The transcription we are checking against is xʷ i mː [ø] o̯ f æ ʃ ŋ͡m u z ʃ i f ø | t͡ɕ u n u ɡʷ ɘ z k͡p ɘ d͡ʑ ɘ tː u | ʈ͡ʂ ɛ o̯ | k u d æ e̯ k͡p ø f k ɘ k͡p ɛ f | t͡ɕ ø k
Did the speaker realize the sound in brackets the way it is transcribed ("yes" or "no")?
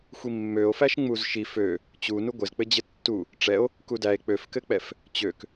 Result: yes